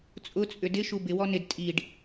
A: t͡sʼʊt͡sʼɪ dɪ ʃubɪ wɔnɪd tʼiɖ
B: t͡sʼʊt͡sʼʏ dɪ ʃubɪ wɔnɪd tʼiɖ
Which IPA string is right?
B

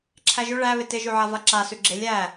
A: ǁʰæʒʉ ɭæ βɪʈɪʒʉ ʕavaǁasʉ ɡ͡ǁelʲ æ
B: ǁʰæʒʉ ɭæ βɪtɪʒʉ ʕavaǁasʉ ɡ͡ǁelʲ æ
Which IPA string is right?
B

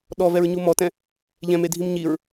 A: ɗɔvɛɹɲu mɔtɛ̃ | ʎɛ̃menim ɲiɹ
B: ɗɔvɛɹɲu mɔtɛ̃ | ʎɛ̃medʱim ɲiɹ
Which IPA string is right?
B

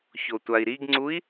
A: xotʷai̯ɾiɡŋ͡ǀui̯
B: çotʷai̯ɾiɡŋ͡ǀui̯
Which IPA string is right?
B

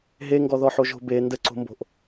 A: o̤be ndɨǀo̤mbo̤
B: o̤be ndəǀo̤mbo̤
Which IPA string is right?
B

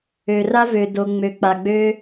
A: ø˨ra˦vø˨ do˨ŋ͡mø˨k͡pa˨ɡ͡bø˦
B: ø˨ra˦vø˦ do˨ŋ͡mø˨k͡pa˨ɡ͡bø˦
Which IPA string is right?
A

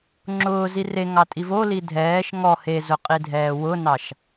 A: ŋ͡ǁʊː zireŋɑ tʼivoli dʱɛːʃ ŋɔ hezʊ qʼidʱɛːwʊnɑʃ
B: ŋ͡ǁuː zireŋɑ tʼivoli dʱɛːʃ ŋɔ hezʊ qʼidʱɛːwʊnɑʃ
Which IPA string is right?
A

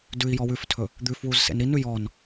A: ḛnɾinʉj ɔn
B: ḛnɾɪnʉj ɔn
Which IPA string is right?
A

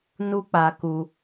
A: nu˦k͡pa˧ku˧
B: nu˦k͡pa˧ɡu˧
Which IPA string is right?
A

